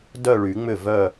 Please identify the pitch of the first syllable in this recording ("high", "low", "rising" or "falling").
falling